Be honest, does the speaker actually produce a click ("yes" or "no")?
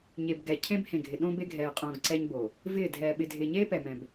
yes